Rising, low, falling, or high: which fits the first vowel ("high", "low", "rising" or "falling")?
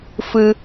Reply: high